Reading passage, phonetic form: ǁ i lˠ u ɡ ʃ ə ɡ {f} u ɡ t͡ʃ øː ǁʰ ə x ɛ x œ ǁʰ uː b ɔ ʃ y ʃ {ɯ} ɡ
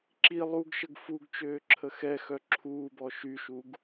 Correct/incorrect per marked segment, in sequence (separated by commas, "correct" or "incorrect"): correct, incorrect